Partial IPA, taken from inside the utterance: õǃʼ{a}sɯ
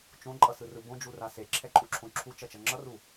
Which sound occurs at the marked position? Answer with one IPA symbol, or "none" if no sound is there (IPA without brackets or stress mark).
ʌ